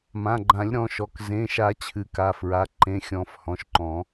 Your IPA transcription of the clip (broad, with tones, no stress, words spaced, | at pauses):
mã˩˧˩ɡ͡ǃã˨˩˦lʲɾɔ̃˩˧˩ ʃɔ˩˧˩k zẽ˩˧˩ʃa˨˩˦ t͡ɕʰɨ˨˩˦ka˩˧˩fɹa˩˧˩ ǃẽ˩˧˩xʲɔ̃˨˩˦f hɔ̃˩˧˩ʃǃɔ̃˨˩˦